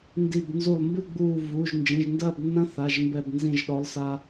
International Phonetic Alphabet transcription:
ndi˧˩b nzu˧˩lˠmbɨ˥˨ ɡ͡buː˧˩vu˩˧˩ʒ nd͡ʒĩ˩˧˩ʒndɐː˥˨bnːɐ̃˦˥θa˩˧˩ʒ mbɛ˧˩bnzĩ˧˩ʒɗɔ˩˥lˠsa˧

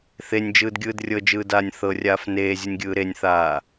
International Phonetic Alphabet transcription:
θenʲd͡ʒɯːdɡʲɯːd rʲɤd͡ʒɯːdaːnʲ θɤrʲaːf neːzʲɯnʲɡʲɯː ɾenʲθaː

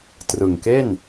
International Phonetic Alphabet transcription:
trɯ˨˩ŋke˥˩n

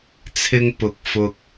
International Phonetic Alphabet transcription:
t͡sʰɪ˧ŋpʊ˨˥k̚ fʊ˧k̚

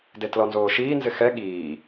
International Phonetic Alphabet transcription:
detlɔnzoːʃiː nzɪxɛ ɠiː

